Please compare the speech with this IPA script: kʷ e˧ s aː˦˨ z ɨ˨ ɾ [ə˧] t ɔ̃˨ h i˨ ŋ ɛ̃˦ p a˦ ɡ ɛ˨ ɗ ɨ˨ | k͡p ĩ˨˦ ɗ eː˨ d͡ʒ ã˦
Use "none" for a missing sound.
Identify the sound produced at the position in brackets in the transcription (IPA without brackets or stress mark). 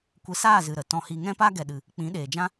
ə˨